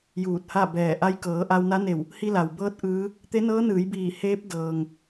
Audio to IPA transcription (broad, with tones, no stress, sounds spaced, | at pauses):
j uː˧˩ t̚ h a˥˨ b ɛː˧˩ ʔ a˧ j k ɤː˩˧ ʔ a˧ w n a˧˥ n e˧˩ w | h i˧ l a˩ w b ɤː˧˥ t̚ ʔ ɯː˧˥ | t̪ e˧˥ n ɤː˧˥ n ɯː˩˧ j b iː˧˩ h eː˧˥ p̚ d ɤː˩ ŋ